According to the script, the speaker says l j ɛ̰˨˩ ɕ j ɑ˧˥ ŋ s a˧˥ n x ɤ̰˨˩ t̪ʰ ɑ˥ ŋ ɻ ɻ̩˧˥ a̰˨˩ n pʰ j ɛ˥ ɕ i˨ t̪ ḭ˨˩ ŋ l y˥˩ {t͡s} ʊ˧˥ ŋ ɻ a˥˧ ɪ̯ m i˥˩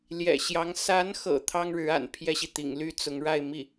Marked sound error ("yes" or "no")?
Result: no